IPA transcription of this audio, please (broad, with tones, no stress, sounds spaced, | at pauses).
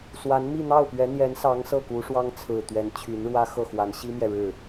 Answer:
s w a˧˥ n m i˥˧ n̪ ɑ˥˩ ʊ̯ p ɥ ɛ˧˥ n̪ j ɛ˧˥ n s ɑ˧˥ ŋ s ɤ˥˩ k u˧˥ ʂ w ɑ˥ ŋ t͡sʰ ɹ̩˨˩ t̪ ɥ ɛ˧˥ n t͡ɕʰ y˧˥ n ɻ w ä˥ x ɤ˥˩ x w a˧˥ n ɕ i˥ m j ɛ˨ ɻ ɻ̩˥˩